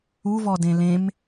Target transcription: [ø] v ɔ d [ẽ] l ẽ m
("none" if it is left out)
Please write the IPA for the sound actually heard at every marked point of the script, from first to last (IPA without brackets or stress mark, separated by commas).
u, ẽ